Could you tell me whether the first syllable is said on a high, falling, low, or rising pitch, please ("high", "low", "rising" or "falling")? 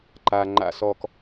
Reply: low